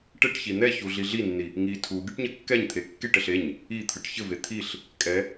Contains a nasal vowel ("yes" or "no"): no